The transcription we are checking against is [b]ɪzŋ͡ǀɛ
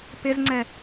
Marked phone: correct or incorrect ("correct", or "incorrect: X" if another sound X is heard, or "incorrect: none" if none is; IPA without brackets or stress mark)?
incorrect: p